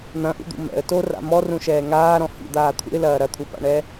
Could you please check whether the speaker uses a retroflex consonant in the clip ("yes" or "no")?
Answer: yes